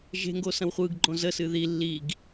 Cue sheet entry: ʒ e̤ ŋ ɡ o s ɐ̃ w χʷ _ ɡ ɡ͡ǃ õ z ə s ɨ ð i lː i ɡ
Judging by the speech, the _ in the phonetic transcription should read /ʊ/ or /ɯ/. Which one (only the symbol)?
ɯ